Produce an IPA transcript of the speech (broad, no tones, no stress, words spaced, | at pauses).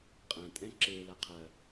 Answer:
qʼɐ̃ tʼɛ̃ǁe laqʰɐ